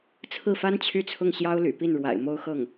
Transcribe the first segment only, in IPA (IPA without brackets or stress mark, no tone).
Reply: t͡sʰ